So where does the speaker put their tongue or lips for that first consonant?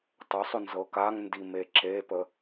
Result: tongue tip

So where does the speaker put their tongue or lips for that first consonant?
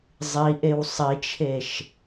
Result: tongue tip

